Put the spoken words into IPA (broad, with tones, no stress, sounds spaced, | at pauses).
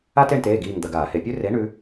a˦ t e˦˨ ɳ t eː˩˧˩ ɡ iː˦˨ ŋ d̪ ɐ˧˩˧ ɡ aː˧˩˧ h e˧˩˧ pʲ ʉ˦ r e˩˥ ɳ ʉ˩˥